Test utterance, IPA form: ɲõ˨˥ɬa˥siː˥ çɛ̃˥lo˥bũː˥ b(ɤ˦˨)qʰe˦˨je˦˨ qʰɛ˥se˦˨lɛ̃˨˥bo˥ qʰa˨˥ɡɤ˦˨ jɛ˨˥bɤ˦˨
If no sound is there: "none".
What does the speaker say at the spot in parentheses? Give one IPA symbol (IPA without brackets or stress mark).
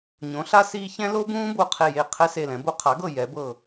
o˦˨